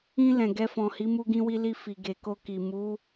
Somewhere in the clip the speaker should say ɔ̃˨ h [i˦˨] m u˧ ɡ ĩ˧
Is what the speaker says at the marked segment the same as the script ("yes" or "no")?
no